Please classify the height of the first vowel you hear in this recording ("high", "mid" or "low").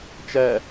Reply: mid